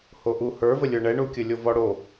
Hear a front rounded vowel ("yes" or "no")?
no